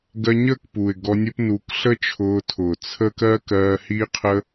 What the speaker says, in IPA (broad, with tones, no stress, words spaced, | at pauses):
ɡɜ˧ɲəː˦˨kpuː˨ɪ̯ ɡɔ˧nʲʊ˦pnuː˧k ɬə˦t͡ʃʰʊː˧tʰʊː˨ t͡sʰə˦ kɜː˦kɜː˧hiː˦ qʰə˦